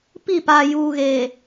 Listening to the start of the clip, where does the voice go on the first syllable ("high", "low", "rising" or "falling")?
falling